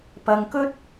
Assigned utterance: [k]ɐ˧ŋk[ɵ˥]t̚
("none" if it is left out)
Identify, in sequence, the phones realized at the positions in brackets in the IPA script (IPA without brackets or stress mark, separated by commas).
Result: p, ɵ˥